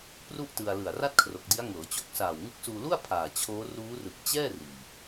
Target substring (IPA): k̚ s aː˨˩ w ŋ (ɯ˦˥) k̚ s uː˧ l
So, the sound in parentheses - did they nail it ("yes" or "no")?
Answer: yes